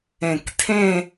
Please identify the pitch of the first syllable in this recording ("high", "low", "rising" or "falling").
low